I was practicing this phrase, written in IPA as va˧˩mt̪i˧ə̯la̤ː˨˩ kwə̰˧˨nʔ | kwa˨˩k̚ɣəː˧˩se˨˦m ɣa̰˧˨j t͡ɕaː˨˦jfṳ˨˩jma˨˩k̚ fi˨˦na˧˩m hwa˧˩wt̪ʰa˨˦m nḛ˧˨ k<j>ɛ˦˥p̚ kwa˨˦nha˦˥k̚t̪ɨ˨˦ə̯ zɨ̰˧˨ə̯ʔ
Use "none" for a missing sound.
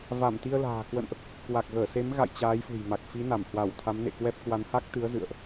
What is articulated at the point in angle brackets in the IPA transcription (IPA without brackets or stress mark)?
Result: w